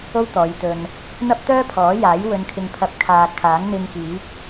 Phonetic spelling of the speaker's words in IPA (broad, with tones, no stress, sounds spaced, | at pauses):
o˥ w t̪ ɔː˨˧ j t̪ ɵ˧ n | n̪ ɐ˥ p̚ t̪ œː˥ pʰ ɔː˨˥ j aː˨˥ j w ɵ˧ n kʰ ɪ˧ ŋ pʰ ɐ˧ p̚ kʰ aː˨ kʰ aː˨˥ ŋ n̪ ɪ˧ ŋ k iː˨˥ k̚